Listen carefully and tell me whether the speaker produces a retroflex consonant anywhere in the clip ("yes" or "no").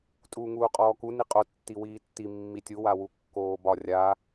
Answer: no